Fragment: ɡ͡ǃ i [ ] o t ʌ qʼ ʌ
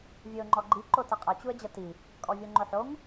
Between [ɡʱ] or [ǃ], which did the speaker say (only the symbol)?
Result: ǃ